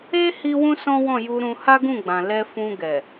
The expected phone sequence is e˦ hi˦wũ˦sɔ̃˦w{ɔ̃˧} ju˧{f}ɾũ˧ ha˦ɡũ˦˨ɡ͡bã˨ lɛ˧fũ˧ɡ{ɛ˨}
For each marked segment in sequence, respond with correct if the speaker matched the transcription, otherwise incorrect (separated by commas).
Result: incorrect, incorrect, correct